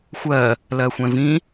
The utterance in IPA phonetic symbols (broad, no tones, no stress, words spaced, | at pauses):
xʷɜ | lɜxʷɛ̃vĩ